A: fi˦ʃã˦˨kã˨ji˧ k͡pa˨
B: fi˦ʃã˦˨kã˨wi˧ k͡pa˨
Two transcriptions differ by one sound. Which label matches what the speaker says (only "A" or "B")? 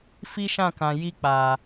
A